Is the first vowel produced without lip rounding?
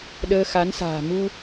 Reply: yes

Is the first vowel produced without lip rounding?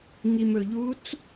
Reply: yes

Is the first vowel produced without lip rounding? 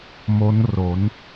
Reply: no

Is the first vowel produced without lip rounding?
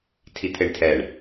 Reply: yes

